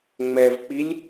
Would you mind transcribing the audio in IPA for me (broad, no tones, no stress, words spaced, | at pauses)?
ŋ͡mɛvk͡pilʲ